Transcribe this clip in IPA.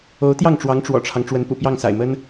o˧˥ʊ̯t̪jɑ˥˩ŋʈ͡ʂwɑ˧˥ŋ ʈ͡ʂwɔ̰˨˩ʈ͡ʂʰɑ˦ŋ ʈ͡ʂwə˧˥npṵ˨˩pjɑ˥˩ŋ sa̰˨˩ɪ̯mə˥n

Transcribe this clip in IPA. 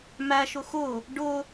mæʃʊ xʊ | ɖʊ

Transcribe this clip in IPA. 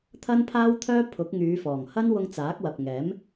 t̪ʰɐ˥npʰaː˥wt̪ʰœː˥ pʰʊ˨˥k̚ŋyː˨˧fɔː˨˩ŋhɐ˥n wʊ˧ŋt͡saː˨˥k̚wɐ˨p̚ŋɛː˨˥m

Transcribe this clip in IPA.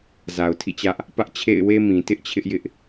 za˨ʊ̯tʰḭ˦˨t͡ɕä˦ʔ | pä˦ʔt͡ɕʰḛ˦˨ɪ̯we˦mĩ˨ tɪ˦ʔ t͡ɕʰɪ˦ʔjɪ˦ʔ

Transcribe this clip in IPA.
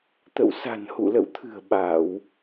t̪ə̰˧˨wsa̤˨˩n hṵ˧˨lə̰˧˨wt̪ʰɨ̤˨˩ə̯ ɓa˧˩˨w

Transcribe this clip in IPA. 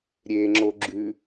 ɾʲeŋ͡ǁo ɡ͡ǁʉ

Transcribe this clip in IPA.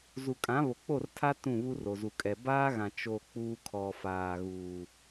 zu˨kʼã˨˦ βo˨k͡po˦˨rtʰa˦ tũ˦˨βu˦ro˨zu˨ kʼɛ˨ baː˦ɣã˨ t͡ʃo˨ k͡puː˦kʰɔ˨ faː˨ɣuː˨

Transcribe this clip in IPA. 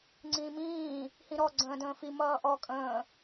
ŋ͡ǀĩːmĩː | hĩɾɔ ɡ͡ǀə̃ːdə̃ːfi mʌːʔɔ kʼə̃ː

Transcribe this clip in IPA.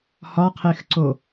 hɒqʰexǀo

